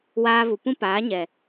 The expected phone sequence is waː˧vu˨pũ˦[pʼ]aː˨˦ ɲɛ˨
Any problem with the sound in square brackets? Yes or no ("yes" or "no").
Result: yes